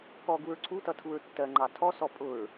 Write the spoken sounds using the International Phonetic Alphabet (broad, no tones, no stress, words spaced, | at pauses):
kɔɡuɹ ǀʰutʌ tʰuɹtːɜŋ͡ǃɑ tʰɔsɔ pʼʊɹ